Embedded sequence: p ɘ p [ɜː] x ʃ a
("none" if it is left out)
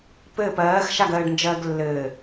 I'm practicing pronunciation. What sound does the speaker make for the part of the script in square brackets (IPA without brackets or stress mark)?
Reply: ɜː